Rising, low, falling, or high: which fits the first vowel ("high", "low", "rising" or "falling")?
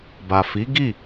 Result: low